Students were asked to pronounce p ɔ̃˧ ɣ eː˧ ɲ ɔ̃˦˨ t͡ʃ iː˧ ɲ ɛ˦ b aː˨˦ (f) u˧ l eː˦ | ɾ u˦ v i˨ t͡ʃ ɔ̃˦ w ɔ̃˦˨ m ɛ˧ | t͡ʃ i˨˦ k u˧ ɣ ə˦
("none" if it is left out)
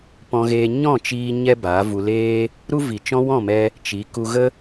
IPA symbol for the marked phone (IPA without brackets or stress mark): v